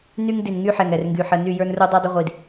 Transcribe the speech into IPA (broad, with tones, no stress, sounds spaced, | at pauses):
n y˦ ŋ d i˨ n ŋ y˦ ħ ɛ˨ ŋ ɛ˨ r ŋ ɡ y˨ ħ ə˦˨ n y˦˨ j ə˞˦ n r u˦ dˤ ə˞˦ dˤ ə˦ ʁʷ i˨ d